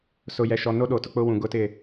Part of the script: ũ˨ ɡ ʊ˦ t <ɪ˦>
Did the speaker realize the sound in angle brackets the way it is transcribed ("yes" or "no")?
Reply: no